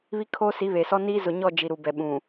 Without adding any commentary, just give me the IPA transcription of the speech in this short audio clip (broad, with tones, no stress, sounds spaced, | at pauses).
β i˦ kʰ oː˦ s i˨˦ β e˨ s ɔ˦ n iː˦ z ʊ˨ ɲ ɔ˦˨ d͡ʒ i˨ ɾ u˨ b ɛ˨ ɓ ũ˨